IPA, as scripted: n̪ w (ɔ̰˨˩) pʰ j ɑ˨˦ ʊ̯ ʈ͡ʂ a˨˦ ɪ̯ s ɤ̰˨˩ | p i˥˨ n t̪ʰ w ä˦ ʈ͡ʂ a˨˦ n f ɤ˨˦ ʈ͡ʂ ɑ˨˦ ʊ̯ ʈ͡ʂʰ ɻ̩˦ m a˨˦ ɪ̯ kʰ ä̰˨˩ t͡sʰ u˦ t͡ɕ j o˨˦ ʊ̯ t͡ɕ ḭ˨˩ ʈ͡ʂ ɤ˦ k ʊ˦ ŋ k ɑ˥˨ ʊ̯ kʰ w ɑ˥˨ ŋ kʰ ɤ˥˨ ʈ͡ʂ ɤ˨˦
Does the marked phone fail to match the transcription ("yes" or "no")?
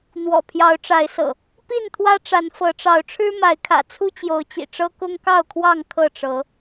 no